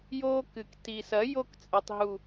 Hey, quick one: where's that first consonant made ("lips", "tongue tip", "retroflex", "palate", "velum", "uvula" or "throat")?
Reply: palate